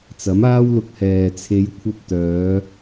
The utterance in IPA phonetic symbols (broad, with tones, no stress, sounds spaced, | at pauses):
t͡s ɐ˨˥ m aː˥ w l ʊ˧ k̚ h ɛː˨ t͡sʰ e˨˧ j kʷʰ ɐ˧ p̚ t̪ œː˨˧